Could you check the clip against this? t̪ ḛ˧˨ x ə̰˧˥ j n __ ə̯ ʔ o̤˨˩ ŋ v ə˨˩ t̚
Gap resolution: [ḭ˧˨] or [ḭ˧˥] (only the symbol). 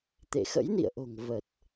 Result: ḭ˧˨